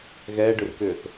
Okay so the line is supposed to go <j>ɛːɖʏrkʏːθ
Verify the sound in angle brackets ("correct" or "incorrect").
incorrect